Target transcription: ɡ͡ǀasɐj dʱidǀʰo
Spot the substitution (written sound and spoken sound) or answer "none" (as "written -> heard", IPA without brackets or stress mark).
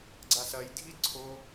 none